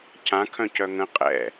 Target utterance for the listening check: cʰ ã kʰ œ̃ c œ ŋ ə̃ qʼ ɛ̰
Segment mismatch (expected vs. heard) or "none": none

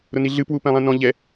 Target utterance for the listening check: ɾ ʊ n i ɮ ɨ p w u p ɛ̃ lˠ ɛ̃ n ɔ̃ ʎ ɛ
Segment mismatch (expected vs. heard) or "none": none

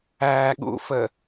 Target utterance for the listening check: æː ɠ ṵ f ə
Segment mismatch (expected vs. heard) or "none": none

